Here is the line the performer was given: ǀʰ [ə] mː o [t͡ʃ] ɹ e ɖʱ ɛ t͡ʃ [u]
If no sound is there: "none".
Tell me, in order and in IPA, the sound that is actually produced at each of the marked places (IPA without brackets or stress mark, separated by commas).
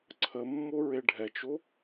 ə, none, o